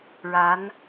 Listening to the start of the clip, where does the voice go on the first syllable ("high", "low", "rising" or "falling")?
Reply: rising